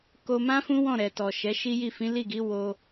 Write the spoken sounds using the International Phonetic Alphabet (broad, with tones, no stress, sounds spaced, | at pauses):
k o˧ m ã˦ f ũ˦ w ɔ̃˦˨ ɾ ɛ˨ t ɔ˨ ʃ ɛ˨˦ ʃ i˦ j i˦˨ f ĩ˨˦ l i˦˨ ɡ i˨˦ w o˧